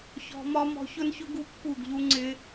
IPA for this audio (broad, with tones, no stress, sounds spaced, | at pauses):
ç ɔ̤˧ m ɒ˦ m ɔ̤˧ ç ʊ˦ n ç ʊ˦ ɡ u˦ pː u˦˨ ɡ ʎ u˦ ŋ͡ǀ ɪ˦